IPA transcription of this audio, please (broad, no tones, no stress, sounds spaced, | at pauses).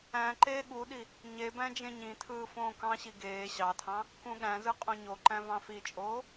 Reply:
æ̃ ǃ eː ɠ u ɗ i | ɲ e b æ̃ d͡ʒ ẽ ɲ ĩ tʰ ɯː f õː k ɑ̃ ɕ i ɡ eː ɕ ɑ tʰ ɑ̃ | k ũ ɠ æ̃ z ɯ qʼ õ ɲ o ǃ æ̃ v ɑ̃ f i t͡ʃʼ oː